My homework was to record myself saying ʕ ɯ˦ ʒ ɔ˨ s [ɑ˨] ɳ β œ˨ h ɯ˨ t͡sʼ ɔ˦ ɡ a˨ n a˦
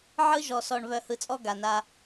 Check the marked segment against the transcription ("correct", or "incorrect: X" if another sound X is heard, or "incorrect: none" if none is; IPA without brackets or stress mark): incorrect: ɔ˨